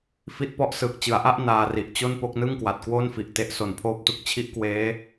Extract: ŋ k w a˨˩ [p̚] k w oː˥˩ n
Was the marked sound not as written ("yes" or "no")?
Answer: yes